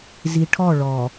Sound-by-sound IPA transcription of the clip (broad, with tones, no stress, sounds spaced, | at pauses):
z i˨ ʈʰ ɔ˦˨ ɭ ɔ˨